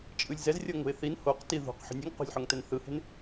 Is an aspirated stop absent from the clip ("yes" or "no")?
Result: yes